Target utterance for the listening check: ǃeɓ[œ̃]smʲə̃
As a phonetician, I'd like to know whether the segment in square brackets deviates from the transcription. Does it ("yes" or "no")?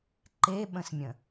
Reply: yes